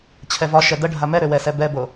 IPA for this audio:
t͡ɕʰ ɛ v ɒ ʃ ɛ d ə ɖʱ a m ɛ ɾ ø w ɛ s ɛ b ɛ b o

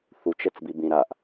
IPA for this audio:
θ u t͡ʃ ɛ t͡s b i b ĩ ɾ a ʔ

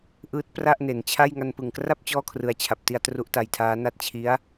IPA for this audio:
ʔ ɯː˦˥ t̚ p r a˥˩ ʔ n e˩˦ n t͡ɕʰ a˥˩ j ŋ a˧ n p ɯ˨˩ ŋ k r a˥˩ p̚ t͡ɕ ɔː˥˩ kʰ r ɯ˨˩ a̯ t͡ɕʰ a˨˩ p̚ t i˧ a̯ t r u˦˥ ʔ t a˧ j tʰ aː˦˥ n a˥˩ t̚ t͡ɕʰ i˦˥ a̯

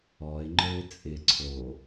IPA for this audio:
ɔ ɪ̯ ŋ͡ǃ ə˞ ɪ̯ t͡sʼ ɪ ǀʰ o

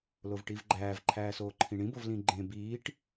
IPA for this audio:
l o v ʈ i v ɡ͡ǃ æː v ǃʰ æː s oː ǃʰ ĩ ɳ ĩ b o v l ĩ ɡ͡ǃ ẽ b iː ʈ

